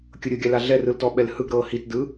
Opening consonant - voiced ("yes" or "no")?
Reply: no